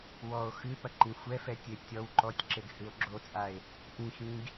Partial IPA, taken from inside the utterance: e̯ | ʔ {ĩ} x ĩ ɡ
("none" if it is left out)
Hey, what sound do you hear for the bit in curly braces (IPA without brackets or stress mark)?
ĩ